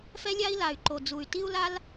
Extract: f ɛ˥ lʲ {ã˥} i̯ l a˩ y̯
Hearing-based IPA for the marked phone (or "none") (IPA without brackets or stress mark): a˥